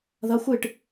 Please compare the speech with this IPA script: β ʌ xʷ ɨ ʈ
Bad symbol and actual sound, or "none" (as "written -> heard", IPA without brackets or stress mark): β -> ð